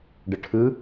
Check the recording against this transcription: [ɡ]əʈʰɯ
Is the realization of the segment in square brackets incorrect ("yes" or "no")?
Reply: yes